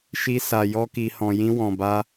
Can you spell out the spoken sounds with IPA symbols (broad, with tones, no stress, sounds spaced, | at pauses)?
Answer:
ʃ i˧ s a˨ j ɔ˧ k i˨ h ɔ̃˨ j ĩ˧ w ɔ̃˨ b a˧